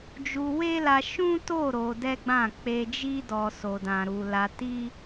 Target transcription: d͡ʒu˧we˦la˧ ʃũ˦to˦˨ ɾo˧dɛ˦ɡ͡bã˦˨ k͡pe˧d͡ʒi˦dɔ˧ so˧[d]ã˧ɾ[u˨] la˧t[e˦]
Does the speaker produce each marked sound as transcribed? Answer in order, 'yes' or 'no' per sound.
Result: yes, no, no

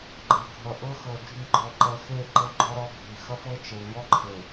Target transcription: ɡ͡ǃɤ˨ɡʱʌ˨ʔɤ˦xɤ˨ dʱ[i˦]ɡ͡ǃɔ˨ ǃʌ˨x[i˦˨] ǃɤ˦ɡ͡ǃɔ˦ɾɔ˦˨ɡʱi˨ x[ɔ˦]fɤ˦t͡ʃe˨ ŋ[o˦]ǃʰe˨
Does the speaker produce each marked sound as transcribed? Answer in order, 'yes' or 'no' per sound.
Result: no, no, no, no

